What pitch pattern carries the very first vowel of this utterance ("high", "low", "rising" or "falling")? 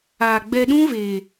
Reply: low